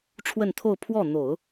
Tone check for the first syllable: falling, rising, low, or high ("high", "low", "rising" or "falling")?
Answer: falling